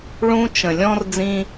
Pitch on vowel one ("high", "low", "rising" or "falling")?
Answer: high